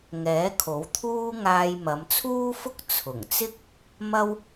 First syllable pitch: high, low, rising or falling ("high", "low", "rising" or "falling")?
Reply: rising